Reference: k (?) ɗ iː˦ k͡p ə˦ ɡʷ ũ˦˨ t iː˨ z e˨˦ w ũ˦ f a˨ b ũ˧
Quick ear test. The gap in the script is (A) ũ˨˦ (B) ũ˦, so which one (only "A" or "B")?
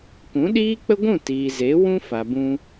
A